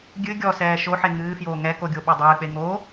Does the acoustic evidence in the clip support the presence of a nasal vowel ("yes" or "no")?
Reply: no